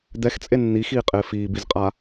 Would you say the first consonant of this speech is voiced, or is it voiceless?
voiced